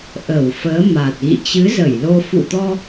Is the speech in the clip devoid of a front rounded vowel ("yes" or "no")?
yes